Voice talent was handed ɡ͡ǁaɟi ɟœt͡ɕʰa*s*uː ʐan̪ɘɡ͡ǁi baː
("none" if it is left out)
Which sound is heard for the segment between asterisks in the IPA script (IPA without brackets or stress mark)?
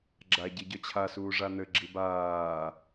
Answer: s